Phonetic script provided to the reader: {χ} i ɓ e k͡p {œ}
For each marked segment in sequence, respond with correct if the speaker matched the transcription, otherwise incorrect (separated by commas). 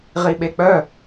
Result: incorrect, correct